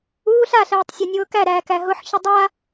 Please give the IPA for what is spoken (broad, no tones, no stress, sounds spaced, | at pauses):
uː ɬ a ɬ ɛː tˤ sʲ a nʲ ʊː k æ ɾ æː k æ ɦ ʊ ħ ç ʊ dˤ a